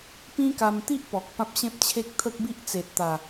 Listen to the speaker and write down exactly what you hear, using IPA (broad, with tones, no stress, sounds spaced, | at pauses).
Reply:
p ĩ˦ k a˧ m t̪ i˦ ʔ p ɔ˨ k̚ p ã˦ p̚ ɕ ẽ˦ p̚ t͡ɕʰ e˦ k̚ t̪ʰ ə˦ k̚ b i˦ ʔ t͡s e˨ t̚ t̪ a˨˩